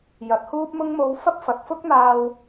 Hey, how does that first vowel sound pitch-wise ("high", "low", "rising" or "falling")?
rising